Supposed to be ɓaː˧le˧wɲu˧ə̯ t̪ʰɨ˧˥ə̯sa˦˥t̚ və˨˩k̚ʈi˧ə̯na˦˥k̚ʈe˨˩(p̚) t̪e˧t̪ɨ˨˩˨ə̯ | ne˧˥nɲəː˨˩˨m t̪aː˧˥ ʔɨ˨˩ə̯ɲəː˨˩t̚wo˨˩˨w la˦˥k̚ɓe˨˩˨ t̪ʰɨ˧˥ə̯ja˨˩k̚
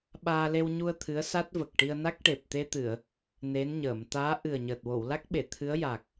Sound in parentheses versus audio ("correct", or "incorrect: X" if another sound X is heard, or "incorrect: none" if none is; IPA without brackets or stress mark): correct